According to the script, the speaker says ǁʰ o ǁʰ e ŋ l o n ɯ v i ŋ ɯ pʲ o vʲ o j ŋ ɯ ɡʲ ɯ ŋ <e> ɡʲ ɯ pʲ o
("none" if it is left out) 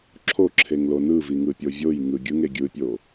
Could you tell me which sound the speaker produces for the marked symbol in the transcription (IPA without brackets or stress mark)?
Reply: e